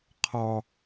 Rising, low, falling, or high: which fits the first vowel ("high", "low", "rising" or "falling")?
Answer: low